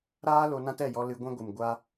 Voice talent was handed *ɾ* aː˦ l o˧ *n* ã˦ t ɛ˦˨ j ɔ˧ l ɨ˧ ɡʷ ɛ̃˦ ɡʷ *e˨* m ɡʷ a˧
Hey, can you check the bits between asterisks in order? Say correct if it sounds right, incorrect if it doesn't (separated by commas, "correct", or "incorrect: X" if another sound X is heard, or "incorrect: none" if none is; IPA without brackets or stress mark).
correct, correct, incorrect: ɨ˨